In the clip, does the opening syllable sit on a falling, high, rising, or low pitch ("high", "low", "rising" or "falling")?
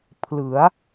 rising